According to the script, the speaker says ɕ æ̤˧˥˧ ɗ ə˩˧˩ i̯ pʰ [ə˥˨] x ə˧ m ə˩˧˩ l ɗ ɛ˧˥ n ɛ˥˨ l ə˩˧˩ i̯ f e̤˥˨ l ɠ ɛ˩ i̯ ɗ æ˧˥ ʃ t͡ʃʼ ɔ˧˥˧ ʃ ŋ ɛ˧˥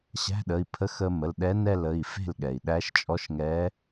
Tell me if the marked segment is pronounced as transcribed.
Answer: no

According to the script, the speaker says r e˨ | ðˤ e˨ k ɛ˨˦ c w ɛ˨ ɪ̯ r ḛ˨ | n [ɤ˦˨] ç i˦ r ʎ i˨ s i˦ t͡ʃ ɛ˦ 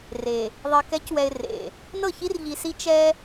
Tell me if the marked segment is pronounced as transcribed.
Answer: yes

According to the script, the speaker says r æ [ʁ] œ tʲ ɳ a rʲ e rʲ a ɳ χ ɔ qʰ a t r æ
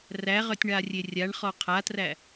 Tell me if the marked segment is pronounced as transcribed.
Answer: yes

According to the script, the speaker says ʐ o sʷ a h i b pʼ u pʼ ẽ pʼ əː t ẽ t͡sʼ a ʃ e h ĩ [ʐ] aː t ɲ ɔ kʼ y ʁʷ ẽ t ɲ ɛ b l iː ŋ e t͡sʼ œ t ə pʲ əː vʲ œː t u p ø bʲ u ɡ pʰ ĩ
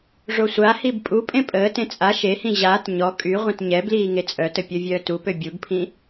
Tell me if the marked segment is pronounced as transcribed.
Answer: no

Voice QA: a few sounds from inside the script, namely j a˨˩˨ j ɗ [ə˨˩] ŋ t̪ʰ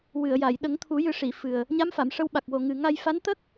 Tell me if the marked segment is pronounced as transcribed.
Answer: no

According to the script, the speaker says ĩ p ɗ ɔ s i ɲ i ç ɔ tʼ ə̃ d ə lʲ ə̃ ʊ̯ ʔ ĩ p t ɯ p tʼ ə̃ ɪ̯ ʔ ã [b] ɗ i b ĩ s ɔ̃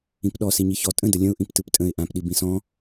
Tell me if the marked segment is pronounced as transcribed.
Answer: no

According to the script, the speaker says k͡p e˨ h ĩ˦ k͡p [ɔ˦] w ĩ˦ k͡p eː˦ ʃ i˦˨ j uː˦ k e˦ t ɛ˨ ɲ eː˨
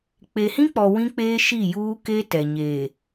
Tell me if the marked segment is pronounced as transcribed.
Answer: no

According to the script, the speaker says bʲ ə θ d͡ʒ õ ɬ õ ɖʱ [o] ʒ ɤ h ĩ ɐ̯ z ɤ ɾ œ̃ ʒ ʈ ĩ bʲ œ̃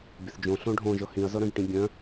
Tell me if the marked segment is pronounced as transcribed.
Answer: no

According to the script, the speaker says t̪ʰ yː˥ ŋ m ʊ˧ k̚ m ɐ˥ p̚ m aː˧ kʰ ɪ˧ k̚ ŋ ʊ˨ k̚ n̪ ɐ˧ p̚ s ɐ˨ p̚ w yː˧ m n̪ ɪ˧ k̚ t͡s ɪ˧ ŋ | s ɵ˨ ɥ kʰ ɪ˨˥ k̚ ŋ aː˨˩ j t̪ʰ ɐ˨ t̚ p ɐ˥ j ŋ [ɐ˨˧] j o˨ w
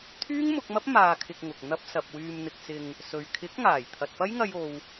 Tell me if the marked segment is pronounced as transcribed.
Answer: no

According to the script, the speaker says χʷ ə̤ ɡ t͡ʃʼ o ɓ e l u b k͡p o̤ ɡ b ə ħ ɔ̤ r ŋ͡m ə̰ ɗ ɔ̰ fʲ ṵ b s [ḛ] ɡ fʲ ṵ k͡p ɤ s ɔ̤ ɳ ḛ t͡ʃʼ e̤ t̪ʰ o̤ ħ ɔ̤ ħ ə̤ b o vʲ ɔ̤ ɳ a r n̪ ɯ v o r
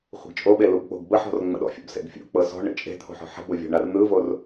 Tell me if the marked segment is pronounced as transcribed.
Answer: yes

